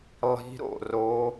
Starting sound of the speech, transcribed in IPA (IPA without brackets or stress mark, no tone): lˠ